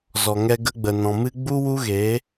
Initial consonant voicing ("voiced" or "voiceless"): voiced